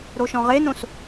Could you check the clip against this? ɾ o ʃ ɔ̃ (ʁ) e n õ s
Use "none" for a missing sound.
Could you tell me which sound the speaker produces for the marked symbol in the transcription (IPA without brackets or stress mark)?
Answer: ʁ